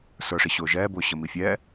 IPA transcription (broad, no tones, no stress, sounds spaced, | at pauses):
s ə˞ ʂ i ɕ ʊː ʒ ɛː b ʊː ɕ ə m i fʲ ɛː